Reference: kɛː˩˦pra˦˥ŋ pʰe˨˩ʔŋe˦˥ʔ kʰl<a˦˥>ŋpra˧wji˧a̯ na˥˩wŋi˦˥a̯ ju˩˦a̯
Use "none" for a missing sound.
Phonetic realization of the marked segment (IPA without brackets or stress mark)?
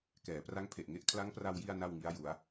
a˦˥